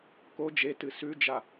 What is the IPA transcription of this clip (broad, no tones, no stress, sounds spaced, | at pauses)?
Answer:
k o d͡ʒ e t ɨ s ʉ d͡ʒ a